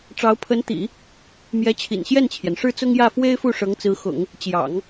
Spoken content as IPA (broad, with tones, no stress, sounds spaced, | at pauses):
ʈ͡ʂ ɑ˧˥ ʊ̯ pʰ ə˧˥ n t̪ ḭ˨˩˦ | m j ɛ˧˥ t͡ɕʰ ḭ˨˩ n ɕ j ɛ˥˩ n t͡ɕʰ j ɛ˩ n ʂ ɻ̩˥˩ t͡s ʊ˥ ŋ j ä˥˩ f w e˥ ɪ̯ f u˥˩ ʂ ɤ˧˥ ŋ t͡s ɹ̩˧˥ x ʊ̰˨˩˦ ŋ | t͡ɕ j ɑ̰˨˩˦ ŋ